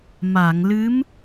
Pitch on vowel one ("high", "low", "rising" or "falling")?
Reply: low